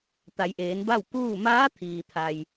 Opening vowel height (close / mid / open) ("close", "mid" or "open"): open